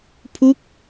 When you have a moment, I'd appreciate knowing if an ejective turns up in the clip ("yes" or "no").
no